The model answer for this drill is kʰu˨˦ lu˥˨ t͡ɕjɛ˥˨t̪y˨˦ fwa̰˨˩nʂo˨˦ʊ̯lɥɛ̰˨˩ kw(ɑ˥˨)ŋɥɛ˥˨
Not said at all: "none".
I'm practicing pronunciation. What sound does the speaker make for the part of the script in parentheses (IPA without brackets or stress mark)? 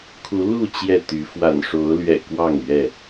ɑ˥˨